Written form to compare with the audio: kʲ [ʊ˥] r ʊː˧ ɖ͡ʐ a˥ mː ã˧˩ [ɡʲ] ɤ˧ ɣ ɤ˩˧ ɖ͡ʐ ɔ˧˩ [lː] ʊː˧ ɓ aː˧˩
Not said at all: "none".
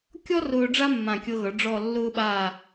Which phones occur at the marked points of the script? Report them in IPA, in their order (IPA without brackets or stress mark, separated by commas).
ɔ˥, kʲ, lː